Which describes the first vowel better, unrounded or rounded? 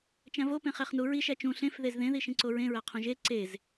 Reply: unrounded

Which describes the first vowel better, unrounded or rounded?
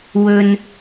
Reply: rounded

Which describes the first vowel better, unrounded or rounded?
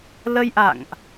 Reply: unrounded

